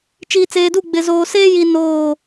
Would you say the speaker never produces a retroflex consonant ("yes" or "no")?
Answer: yes